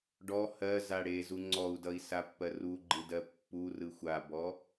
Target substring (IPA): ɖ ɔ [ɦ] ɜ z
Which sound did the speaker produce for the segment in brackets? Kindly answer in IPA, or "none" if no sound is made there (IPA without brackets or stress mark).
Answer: h